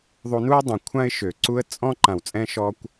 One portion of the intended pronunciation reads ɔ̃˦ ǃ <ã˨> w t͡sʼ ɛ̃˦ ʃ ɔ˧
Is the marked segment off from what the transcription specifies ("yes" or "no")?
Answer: no